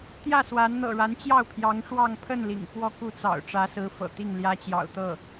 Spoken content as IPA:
t̪ j ä˥˩ s w a˧˥ n n̪ ɤ̰˨˩ ɻ a˧˥ n t͡ɕ j ɑ˥˩ ʊ̯ pʰ j ɑ˧˥ ŋ ʂ w ɑ˥˧ ŋ pʰ ə˥˩ n l ḭ˨˩ ŋ f w ɔ˥˧ k u˥˩ t͡s ɑ̰˨˩ ʊ̯ ʈ͡ʂ ä˧˥ s ɹ̩˧˥ f ɤ̰˨˩ t̪ i˥˩ ŋ l j ä˥ t͡ɕ j ɑ̰˨˩ ʊ̯ t̪ ɤ˥˩

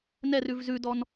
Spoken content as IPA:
n ɛ r ʉ v z ʉ d ɔ n

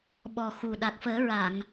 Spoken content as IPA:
ɓ ɔ˨˩ x u˨˩ ɗ a˨˩ k̚ f əː˨˩˦ ɹ a˨˩˨ ŋ

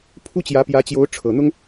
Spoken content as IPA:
pʰ u˥ t͡ɕ j ä˧˥ p j ä˧˥ t͡ɕ j o˧˥ ʊ̯ ʈ͡ʂʰ ɤ˨˩ n̪ ʊ˥ ŋ

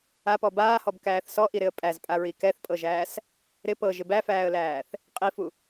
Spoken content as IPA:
a p ɔ b aː h ɔ b k æː θ s ɔ ʔ i ɾ ɪ ə̯ pʼ æ z pʼ a ɹ i k ɛ θ pʼ ɤ ʒ æː s | ɾ ɪ p ɤ ʒ ɪ b æ f æː ə̯ l æː θ | qʼ i f u

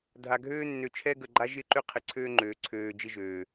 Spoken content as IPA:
dʱ a˨ ɡʱ øː˦ nː ø˨ t͡ʃʰ ɛ˦ ɡ ə˨ ɡ͡ǃ a˦ ʒ ɪ˦ ǃ ʏ˦ qʰ ɪ˨ ǀʰ øː˦ ŋ͡ǃ øː˨ ǀʰ øː˨ d͡ʒ ɪ˦ ʒ øː˨

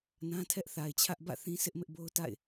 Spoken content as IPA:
n ã˦ tʰ ɛ˦ ʔ θ a˨ ɪ̯ t͡ɕʰ ä˦ ʔ b ä̰˦˨ θ ĩ˦ sʰ ɪ˦ ʔ m ɪ˦ ʔ b o˦ ʊ̯ t a̰˦˨ ɪ̯

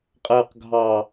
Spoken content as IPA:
qʼ æ q ɡʱ ɑ

